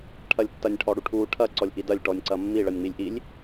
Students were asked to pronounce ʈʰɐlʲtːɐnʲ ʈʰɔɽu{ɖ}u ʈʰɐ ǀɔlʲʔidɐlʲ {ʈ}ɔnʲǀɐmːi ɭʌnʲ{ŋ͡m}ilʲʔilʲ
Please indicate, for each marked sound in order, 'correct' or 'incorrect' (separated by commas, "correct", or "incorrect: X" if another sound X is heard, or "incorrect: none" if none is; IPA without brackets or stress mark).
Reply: incorrect: ʈʰ, correct, correct